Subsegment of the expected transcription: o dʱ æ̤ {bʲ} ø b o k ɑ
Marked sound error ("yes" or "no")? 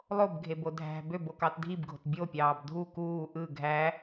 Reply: yes